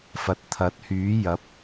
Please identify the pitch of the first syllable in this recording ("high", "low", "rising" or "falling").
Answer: low